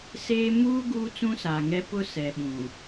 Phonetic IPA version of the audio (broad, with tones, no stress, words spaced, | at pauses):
seː˦ muː˦ ɡuː˦t͡sũ˦saː˨ŋɛ˦ pʊ˦sɛ˨ɓũ˨